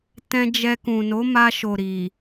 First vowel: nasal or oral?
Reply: nasal